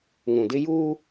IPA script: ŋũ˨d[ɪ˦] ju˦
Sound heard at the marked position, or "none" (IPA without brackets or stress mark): ɪ˦